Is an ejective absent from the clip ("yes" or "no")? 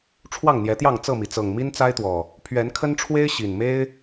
yes